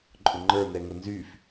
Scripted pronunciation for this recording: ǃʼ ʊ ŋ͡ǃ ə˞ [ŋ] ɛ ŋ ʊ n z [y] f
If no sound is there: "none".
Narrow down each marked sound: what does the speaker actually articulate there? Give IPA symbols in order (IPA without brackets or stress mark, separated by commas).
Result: n, y